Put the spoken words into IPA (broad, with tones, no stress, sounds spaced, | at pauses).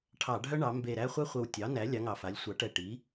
ʈʰ ɑ˧˩˧ ɖʱ œ˦ ɳ ɑ˩˧ m b e˨˩ ɾ æ˦ χʷ ɛ˦ χʷ ə˨˩ w tʲ ɑ˩˥ n æ˩˥ lʲ ɑ˩˥ ŋ ɑ˨˩ f a˩˥ lʲ sʷ ɑ˩˥ ʈ ɛ˨˩ ʈ i˩˥